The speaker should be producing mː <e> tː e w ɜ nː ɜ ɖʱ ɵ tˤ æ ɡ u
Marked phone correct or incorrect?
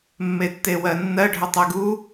correct